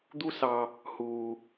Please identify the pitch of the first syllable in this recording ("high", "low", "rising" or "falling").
high